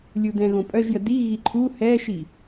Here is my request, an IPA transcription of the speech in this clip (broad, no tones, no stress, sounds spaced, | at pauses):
lʲ u d ɛ̃ ɣ õ pʼ œ ʒ j ə d i ɣ i ǃʰ u h ɛ ʃ i